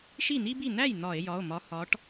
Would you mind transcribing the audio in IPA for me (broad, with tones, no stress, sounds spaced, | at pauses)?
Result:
ʃ i˥˩ n̪ i˥ b i˥˩ n̪ æ˥˩ j n̪ ɒ˧˩˧ e̯ j ɒ˩˧˩ o̯ m ɒ˨˦ h ɒ˨˦ ʈ